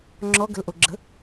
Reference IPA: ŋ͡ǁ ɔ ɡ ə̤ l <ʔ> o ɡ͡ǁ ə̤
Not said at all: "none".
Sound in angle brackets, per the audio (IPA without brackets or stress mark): ʔ